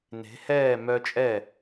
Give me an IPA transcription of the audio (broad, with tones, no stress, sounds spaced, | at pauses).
n e̤˩˧ h ɛː˧˩ m œ˧ t͡ʃʼ ɛ˧˩